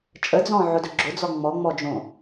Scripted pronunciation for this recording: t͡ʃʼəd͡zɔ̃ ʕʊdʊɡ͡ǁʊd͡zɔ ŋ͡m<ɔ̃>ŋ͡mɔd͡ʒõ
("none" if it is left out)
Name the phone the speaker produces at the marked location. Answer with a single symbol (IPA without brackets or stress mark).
ɔ